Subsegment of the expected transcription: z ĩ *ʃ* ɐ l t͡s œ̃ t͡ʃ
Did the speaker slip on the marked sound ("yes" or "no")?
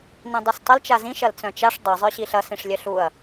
no